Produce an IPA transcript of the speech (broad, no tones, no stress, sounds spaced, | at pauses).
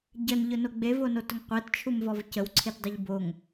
ɟ ə n ʎ ʊ n o ɡ͡b e v o n o t ʊ ŋ qʷ e t t͡ʃʰ u m v ɔ v c ə w ǀʰ e t dˤ i ʎ b o ŋ